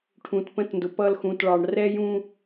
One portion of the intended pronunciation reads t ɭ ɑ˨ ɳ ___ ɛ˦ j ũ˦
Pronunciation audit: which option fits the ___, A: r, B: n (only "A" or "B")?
A